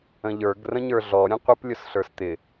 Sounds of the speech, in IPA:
ə̃ ʎ ə˞ ɡ r ə̃ ɲ ə˞ ɮ ɔ ɾʲ ə̃ qʷ ɪ p lʲ ʊ s ɬ ə˞ s t̪ ɪ

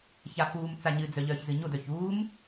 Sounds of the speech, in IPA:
ç a f uː m t͡s a ɲ ɨ d͡z œ ʎ œː ç z ɨ ɲ o d œ ç uː m

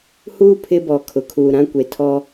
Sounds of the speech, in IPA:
h uː˦ pʰ ɪ˦ b ɔ˨ kʰ ʊ˨ kʰ uː˨ ɾ ã˦ kʷ e˨ tʰ ɔ˦

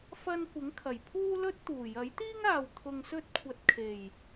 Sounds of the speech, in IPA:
f ɐ˧ n kʷ ɪ˨˥ ŋ kʰ ɐ˨˩ j pʰ uː˥ l ɵ˥ t̚ t̪ uː˨˩ j ɐ˨˥ j t̪ iː˥ ŋ aː˨ w t̪ʰ ʊ˧ ŋ s ɵ˥ t̚ kʷʰ ɐ˧ t̚ kʰ e˨˩ j

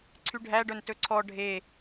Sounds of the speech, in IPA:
ǀʰ y ɖʱ æ ɖ œ n t ɵ ǀʰ ɔ ɖʱ e

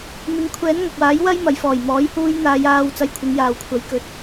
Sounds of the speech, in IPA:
m ɪ˧ ŋ kʷʰ ɛː˨˥ n ŋ ɐ˨ k̚ w aː˨˥ j w ɐ˥ j m ɐ˨ j f ɔː˨˩ j m ɔː˨˥ j h uː˧ j n̪ aː˨˧ j aː˧ w t͡s ɐ˧ j kʷʰ ɪ˨˧ ŋ j aː˨ w kʷʰ ɐ˨˥ j k ɵ˨˥ t̚

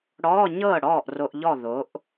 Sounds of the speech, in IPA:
ɽ ɔ˧˥˧ ɲ ɤ˥˩ ɽ ɔː˥˩ ʔ r o˧ ʔ ʎ ɔ˥˩ ð o˩˥ ʔ

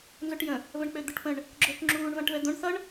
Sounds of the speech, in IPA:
n z o ʈ j ə̃ | v ə̃ ɳ k͡p ø d̪ ə ʈ p ə̃ ɳ | ɡ͡ǁ ø ʈ ŋ͡ǁ uː ɳ v ã ʈ v ɛ d̪ õ ɳ θ ʌ ɳ

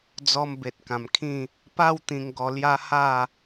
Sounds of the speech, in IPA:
d͡z ɔ˧ m b e˨ t̚ k ã˨˩ m kʰ ĩ˥˧ | p a˥˧ w t̪ ĩ˧ ŋ ɡ ɔ˧ l j a˦ h a˥˧

